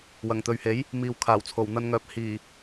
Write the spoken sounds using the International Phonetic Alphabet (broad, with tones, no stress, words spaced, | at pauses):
wɐ˨˩ŋt̪ɵ˨ɥhe˨˥j | miː˨w kʰaː˨˩wt͡sʰo˨˩w n̪ɐ˧nŋœː˨p̚ hiː˨˩